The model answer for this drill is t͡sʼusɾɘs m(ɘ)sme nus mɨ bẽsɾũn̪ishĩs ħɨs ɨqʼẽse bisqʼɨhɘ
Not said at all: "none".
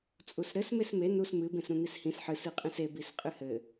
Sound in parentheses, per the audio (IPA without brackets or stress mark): e